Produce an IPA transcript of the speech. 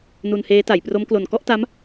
n u˧ n h eː˦˥ t a˩˦ j p r o˦˥ m k l o˨˩ n k ɔ˥˩ ʔ t a˦˥ m

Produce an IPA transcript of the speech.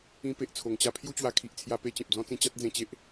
ĩ˧ p e˨ ʔ t͡sʰ o˨˩ ŋ t͡ɕ a˥˧ pʰ j u˥˧ t͡ɕ w a˧ kʰ i˨ ʔ t͡sʰ j a˧ p e˧ t͡ɕ ẽ˨ p̚ d͡z ɔ̃˦ t͡s ĩ˧ t͡ɕ a˦ t̚ d͡z ẽ˧ t͡ɕ e˦ ʔ

